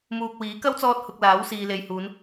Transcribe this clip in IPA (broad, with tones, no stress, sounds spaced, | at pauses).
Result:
m uː˨ k̚ w iː˨˥ k ɐ˥ w t͡s ɔː˧ t̚ h ʊ˨ k̚ l aː˨˥ w s iː˨ l e˨ j h uː˨˧ n